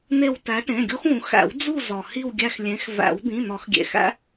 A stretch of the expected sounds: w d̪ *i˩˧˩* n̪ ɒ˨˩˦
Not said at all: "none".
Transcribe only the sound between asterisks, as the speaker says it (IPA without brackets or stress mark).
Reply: ĩ˩˧˩